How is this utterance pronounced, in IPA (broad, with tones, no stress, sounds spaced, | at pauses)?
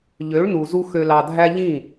ʎ ø˨˦ ɭ n u˨ z u˧ x ø˨ l ɑ˨ dʱ æ˧ ʎ ĩ˦˨